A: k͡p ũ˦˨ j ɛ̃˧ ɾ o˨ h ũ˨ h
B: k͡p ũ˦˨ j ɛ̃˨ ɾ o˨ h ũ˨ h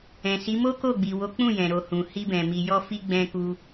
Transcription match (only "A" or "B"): B